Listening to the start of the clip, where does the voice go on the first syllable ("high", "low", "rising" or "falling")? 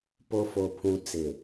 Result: low